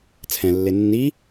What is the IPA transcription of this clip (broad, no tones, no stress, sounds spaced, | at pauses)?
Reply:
t͡sʰ ɛ̃ lː e nː i